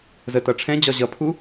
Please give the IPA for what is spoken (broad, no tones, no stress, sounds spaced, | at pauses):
z ə t ʌ ʈ͡ʂʰ ɛ̃ d͡ʑ ɒ ʑ ʌ pʰ u